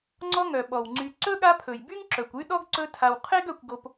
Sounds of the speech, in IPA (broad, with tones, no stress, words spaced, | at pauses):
ŋ͡ǀɔ˦ŋœ˩ ɓɔ˩wŋ͡ǀy˨ ǀɵ˥ɠa˦pʰɵ˩jby˥ŋ ǁœ˩kʷy˥ɗɔ˥ɡ ǀɵ˦tʰa˨w qʰe˥ɡœ˨kʷɡo˨p